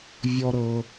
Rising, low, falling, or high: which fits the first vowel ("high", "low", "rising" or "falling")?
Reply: low